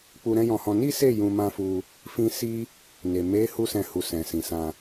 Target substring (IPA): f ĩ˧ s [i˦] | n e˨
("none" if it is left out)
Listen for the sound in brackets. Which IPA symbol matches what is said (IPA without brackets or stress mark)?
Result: i˦